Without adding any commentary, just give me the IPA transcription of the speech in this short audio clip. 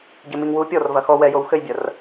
ɟ ɘ m i ŋ w u pʲ ɔ r v ɐ x ɔ w ɛ j o w x ɘ j bʲ ɐ r

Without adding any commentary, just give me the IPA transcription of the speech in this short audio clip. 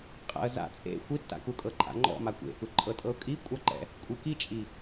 qʼ a̰ ə̯ z a̰ t͡sʼ ḛ xʷ i tː a̰ k u kʼ ɤ ǃʼ a̰ ŋ͡ǃ ɔ̰ m a kʷ ḛ f ɯ ǃʼ ɤ tʼ ɤ ʊ̯ kʼ i kʷʼ a ǃ ɛ̰ | kʷʼ i k i t͡ʃʼ i

